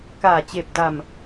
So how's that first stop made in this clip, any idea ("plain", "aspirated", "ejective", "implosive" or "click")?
plain